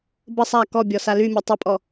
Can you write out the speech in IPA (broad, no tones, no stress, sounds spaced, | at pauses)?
b ə sˤ a k ɔ bʲ ɔ s a l y mʲ ɔ tˤ ə pʼ ɔ